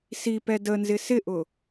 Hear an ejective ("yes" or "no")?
no